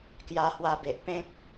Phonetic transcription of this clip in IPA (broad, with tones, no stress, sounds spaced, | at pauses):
k j a˧ h w a˧ b e˨ ʔ p ẽ˦ k̚